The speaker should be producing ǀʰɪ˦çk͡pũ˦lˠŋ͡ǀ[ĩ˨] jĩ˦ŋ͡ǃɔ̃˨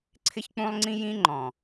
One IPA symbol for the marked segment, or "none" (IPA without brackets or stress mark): ĩ˦